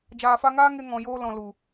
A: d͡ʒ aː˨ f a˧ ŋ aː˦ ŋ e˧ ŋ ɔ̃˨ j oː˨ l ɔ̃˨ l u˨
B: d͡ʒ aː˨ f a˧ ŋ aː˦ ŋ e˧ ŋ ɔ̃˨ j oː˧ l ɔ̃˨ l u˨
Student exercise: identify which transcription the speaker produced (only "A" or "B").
B